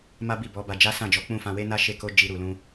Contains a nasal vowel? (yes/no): yes